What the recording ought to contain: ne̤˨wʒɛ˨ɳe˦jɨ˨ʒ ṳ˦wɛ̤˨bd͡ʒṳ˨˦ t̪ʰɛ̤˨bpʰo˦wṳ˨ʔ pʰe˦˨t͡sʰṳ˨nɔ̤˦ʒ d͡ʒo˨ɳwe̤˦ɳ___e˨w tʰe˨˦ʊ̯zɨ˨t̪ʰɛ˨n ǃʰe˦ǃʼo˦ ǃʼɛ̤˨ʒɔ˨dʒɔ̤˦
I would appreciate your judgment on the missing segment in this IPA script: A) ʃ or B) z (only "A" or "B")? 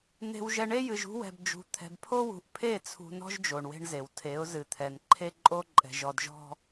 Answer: B